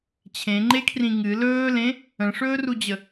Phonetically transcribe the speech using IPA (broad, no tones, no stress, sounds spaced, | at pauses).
t͡ɕʰ ẽ ŋ͡ǃ e kʰ r ĩ ŋ ɨ l ɵː l ẽ | ə̃ ʂ ɵː r u d͡ʑ ə